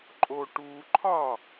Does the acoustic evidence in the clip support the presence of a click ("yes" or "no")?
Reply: yes